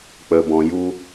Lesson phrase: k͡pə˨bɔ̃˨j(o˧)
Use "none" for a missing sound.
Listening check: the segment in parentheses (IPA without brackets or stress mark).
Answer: u˧